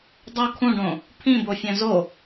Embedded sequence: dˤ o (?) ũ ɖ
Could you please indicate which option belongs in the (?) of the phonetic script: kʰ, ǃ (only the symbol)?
kʰ